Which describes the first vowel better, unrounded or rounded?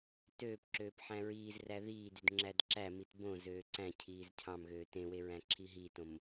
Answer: rounded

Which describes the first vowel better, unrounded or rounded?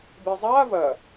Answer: unrounded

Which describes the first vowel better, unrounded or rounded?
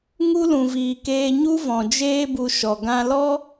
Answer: rounded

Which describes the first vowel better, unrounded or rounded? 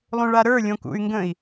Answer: rounded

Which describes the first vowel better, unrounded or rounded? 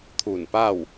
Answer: rounded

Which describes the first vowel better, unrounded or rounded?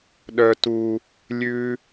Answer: rounded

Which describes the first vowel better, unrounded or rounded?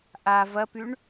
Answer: unrounded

